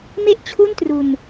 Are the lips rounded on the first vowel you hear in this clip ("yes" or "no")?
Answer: no